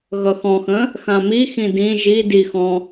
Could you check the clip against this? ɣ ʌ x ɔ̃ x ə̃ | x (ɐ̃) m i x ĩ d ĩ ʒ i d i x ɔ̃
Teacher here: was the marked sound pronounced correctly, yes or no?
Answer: no